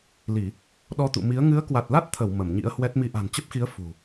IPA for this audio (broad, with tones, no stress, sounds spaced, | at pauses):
l i˧˩˨ | ɗ ɔ˧ t̪ ṵ˧˨ m i˨˦ ə̯ ŋ ɨ˨˦ ə̯ k w a˨˩ t̚ l a˦˥ t̚ t̪ʰ ə˧˩ w m ə˧˩ m ɲ ḭ˧˥ ə̯ h w ɛ˦˥ t̚ m i˨˦ ʔ a̤˨˩ n t͡ɕ ə˦˥ p̚ x i˨˦ ə̯ f ṳ˨˩